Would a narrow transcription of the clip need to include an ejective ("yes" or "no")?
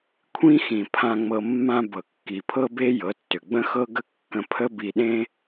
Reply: no